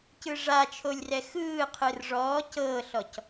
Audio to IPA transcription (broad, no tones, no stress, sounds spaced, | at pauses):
c ɯ ʐ a t͡ʃʰ o lʲ r ɛ x ɯː qʰ ɯ r ʐ ɔː c ɤː ɬ ɔ c